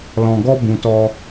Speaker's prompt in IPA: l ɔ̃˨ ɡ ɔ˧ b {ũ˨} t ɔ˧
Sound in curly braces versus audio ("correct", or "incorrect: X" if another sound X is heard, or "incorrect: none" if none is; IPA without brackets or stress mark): correct